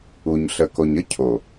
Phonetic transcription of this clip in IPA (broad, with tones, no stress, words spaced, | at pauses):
u˨ɲɬə˨ko˨ɲə˦ cʰo˨